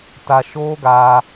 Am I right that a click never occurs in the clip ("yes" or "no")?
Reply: yes